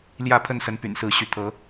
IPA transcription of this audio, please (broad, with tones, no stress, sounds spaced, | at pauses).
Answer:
l j ä˥˨ pʰ ə˥˨ n s ə˨˦ n p y̰˨˩ n s ɹ̩˨˦ ɕ y˨˦ t̪ʰ ɤ˨˦